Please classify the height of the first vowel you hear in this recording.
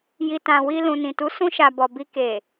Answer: high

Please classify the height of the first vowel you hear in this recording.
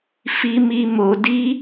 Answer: high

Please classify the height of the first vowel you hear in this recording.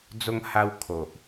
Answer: mid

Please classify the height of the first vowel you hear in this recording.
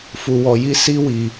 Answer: high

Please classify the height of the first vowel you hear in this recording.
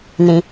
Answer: high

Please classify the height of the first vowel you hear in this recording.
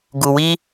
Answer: high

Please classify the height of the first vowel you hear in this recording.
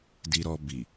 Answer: high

